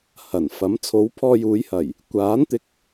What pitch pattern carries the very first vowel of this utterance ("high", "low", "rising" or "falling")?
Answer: low